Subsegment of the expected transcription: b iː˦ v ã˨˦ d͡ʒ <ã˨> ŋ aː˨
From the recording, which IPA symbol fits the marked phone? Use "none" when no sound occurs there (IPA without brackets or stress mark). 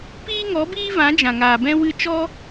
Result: ã˨